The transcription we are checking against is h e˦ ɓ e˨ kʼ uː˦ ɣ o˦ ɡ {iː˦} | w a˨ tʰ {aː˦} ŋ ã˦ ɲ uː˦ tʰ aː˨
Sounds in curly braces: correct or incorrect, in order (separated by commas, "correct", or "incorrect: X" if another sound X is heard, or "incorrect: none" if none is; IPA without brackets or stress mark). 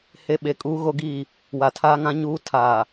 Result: incorrect: iː˦˨, correct